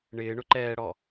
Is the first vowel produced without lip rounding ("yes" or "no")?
yes